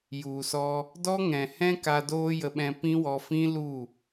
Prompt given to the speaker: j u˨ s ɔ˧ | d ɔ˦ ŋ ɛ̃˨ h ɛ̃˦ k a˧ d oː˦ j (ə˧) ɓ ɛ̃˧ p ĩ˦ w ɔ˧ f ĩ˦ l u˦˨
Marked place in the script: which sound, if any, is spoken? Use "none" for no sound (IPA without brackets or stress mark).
ə˧